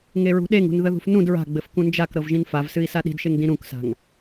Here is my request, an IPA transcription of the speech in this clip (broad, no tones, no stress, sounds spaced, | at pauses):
ŋ e ɹ ṳ ɗ e ŋ ṳ n ð ə ð ṳ f n ũ d ɹ a̤ ɡ͡b ɘ f k ũ n d͡ʒ a k ɾ ɤ v ʒ ĩ n f a v s ɨ i̯ s a ɗ i̤ d ʃ e ŋ d ĩ ɾ ũ k s a̤ ŋ